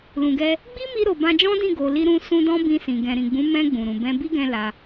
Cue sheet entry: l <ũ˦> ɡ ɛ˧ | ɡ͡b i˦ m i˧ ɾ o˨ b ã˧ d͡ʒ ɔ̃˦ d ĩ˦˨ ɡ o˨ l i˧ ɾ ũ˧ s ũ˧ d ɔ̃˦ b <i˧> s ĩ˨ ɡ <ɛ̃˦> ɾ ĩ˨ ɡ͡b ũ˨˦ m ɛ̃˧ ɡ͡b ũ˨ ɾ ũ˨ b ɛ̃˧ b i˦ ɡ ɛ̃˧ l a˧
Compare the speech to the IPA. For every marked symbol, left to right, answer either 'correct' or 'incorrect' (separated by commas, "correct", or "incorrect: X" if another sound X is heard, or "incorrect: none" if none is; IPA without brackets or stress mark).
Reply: incorrect: ũ˨, incorrect: ĩ˧, incorrect: ɛ̃˨